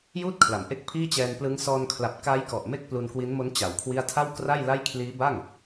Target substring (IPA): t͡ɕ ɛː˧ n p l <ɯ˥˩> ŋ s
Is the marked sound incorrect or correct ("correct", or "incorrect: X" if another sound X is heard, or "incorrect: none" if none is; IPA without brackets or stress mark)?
incorrect: ɯ˦˥